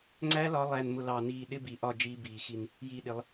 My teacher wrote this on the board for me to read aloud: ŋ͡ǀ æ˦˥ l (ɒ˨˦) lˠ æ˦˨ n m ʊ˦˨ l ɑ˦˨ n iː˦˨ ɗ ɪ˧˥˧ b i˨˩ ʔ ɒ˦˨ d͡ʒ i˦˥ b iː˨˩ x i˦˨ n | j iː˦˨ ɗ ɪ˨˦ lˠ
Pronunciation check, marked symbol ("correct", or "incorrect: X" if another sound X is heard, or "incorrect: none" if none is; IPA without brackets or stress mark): correct